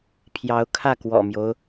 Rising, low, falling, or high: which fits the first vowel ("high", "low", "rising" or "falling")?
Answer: rising